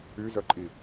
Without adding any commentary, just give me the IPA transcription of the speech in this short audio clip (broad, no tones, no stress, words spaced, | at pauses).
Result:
yzœǃʼi